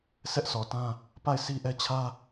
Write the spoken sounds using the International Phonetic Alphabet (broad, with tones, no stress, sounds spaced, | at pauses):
sʰ ɛ˦ ʔ s ɔ˨ t ã˦ | p a˦˨ ɪ̯ s i˦ ʔ ɛ˦ t͡ɕʰ ä˦